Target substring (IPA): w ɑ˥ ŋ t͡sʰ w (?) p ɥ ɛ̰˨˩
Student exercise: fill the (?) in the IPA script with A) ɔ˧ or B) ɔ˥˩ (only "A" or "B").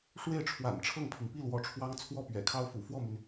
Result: B